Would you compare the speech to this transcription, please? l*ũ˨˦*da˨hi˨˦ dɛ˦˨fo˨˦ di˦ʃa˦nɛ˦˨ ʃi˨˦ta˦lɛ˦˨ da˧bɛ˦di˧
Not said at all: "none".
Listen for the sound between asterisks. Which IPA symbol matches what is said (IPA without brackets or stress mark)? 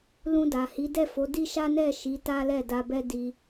ũ˧